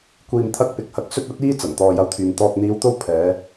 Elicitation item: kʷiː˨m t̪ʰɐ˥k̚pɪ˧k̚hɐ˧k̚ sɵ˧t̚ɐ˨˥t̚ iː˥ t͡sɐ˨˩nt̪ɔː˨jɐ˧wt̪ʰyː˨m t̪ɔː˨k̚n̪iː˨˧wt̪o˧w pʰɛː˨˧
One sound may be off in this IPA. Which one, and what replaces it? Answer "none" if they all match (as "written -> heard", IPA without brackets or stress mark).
none